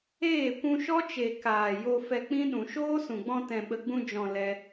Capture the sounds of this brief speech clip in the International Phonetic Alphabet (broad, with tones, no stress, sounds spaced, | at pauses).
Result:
eː˦˨ kʷ ũ˧ ʃ ɔ˦ t͡ʃ e˨ k aː˨ j o˧ f ɛ˧ k͡p ĩ˦ ɗ ũ˨ ʃ oː˦ s ũ˨ ɡ͡b ɔ̃˧ t ɛ̃˨ ɓ ə˨ ɡ͡b ũ˧ d͡ʒ ɔ̃˨ l ɛ˧